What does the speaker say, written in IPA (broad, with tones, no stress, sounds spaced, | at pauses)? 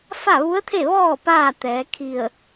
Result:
f a˥˨ ʋ u˧˥ ə̯ t̪ʰ e˥˨ ʋ ɔː˥˨ p aː˥˨ t̪ ɛː˩˧ kʰ i˧˩ ə̯